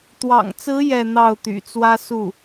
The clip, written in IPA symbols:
t̪wɑ̰˨˩ŋt͡sɹ̩˧˥ jɛ˥˧n̪ɑ˥˩ʊ̯t̪y̰˨˩ t͡swä˥su˥˩

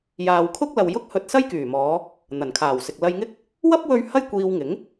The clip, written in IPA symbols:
jaː˨wkʰʊ˥k̚lɐ˨w jʊ˥k̚ hɵ˧t̚sɐ˥jkyː˨˩mɔː˨˧ | n̪ɐ˨˩nkʰaː˨˩wsɪ˨k̚ lɐ˧jŋɪ˥k̚ | wɐ˥p̚ wɵ˥ɥ hɐ˥j kʷiː˧wŋɪ˨˥ŋ

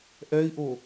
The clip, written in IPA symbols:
ʔɛi̯ʔo

